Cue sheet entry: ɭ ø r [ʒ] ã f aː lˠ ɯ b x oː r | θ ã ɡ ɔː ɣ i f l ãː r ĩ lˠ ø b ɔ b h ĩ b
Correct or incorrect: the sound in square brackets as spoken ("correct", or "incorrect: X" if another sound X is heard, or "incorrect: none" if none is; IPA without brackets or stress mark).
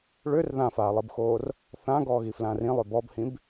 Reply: incorrect: ð